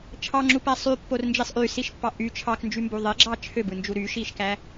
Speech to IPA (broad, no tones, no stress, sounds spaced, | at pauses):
t͡ʃʰ ɑ ŋ͡ǁ u p æ sˤ y pː o r n d͡ʒ i sˤ ʔ y s i ʃ pː ɑ ʔ y t͡ʃʰ ɑ k n d͡ʒ y m b u ðˤ e ɡ͡ǁ ɑ t͡ʃʰ ø b ɯ n d͡ʒ u ɾ y ʃ i ʃ k æ